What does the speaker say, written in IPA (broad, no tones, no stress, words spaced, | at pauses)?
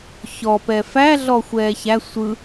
çɔpɛ fæ ɮɔxʷɛːçæ sʷɯ